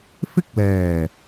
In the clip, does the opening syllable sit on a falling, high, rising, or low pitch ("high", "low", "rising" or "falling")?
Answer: high